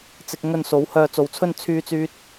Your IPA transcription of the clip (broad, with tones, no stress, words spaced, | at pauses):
t͡sɪ˧k̚ ŋɵ˥n so˨˥w hœː˧t͡so˨˧wt͡sʰɵ˥n t͡sʰyː˥t͡syː˥t̚